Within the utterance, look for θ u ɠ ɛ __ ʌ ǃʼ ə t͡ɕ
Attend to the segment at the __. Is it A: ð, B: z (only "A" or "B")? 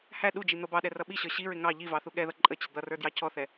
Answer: A